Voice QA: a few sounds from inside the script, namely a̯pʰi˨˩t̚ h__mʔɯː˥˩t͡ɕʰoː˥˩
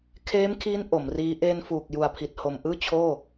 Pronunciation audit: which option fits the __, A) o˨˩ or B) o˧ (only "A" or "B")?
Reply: A